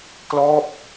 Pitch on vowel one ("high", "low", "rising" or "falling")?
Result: falling